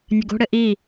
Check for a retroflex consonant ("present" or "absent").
present